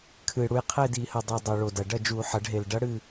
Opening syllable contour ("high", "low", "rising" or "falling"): low